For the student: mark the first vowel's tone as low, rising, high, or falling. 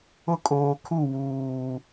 high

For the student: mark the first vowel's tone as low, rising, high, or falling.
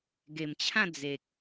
low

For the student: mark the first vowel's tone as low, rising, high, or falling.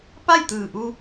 falling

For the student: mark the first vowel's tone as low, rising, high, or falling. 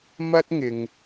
high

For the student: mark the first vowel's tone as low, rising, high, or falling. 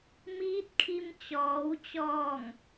rising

